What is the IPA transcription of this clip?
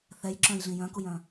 θ ɛ j ǁ œ̃ j ɮ ĩ j œ̃ k u j œ̃

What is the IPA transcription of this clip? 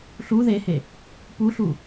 ɬ u ð e h e | p u ɬ u

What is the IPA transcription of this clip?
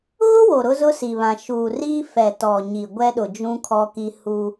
ɣ ʊ˦ w o˨ ɾ ʊ˦ z ʊ˦ s i˨ β ã˨ ʃ uː˨ r iː˦ f ɛ˨ t ɔ˨ ɲ i˨ ɡʷ ɛ˦ ɗ ʊ˨ d͡ʒ ũ˦ kʰ ɔ˦ k i˦ h u˦

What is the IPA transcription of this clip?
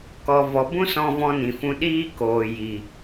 k ɔ˨ v ɔ˨ b ũ˦ s ɔ̃˧ v ɔ̃˧ n ĩ˨ f ũ˧ ɗ iː˧ k oː˨ j i˨

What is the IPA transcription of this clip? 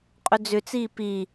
qʼ ʏ d͡z ʏ t͡s iː p i

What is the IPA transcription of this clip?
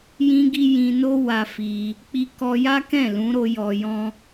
j ĩ˧ ɡ i˧ j ĩ˧ n o˦ w a˧ f i˧ | k͡p i˧ k ɔ˧ j a˦ k ɛ̃˦˨ l ũ˨˦ ɾ o˧ j ɔ˧ j ɔ̃˦

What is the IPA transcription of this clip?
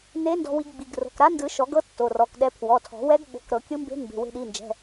n e˧˥ n d ɔ̤˧ w i˧ ɡ ɡ͡b i˩˧˩ ɡ r o̤˩˧˩ k ɾ a˧˥ n d ɯ˨˩˦ ʃ ɔ˨˩˦ ɡ ɤ˧˥ tː o˩˧˩ r ɔ˩˧˩ k ɗ ɛ˧˥ pʰ w ɔ˩˧˩ tʰ ɔ̤˨˩˦ w ɛ˧˥ ɡ ɓ o̤˩˧˩ k ɾ ɤ˨˩˦ kʲ ɯ˧˥ m b e̤˧˥ m b e̤˩˧˩ w e̤˧ ɗ i˩˧˩ n d͡ʒ ɛ̤˩˧˩

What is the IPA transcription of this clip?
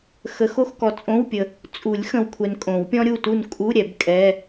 x ə˨˩˦ x o˥˨ x k ɔ˨ t͡sʼ õ˧˥˧ w pʲ ə˨ | t͡sʼ u˨˩˦ lʲ x ə̃˨ w kʷʰ ɛ˨ n kʼ õ˨˩˦ w pʲ ɔ̃˥ ɾʲ u˥˨ t u˥˨ n kʼ u˧˥˧ ɾʲ ɛ˨˩˦ b kʼ ɛ˧˥˧

